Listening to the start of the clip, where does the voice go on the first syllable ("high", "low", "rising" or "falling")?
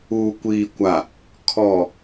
low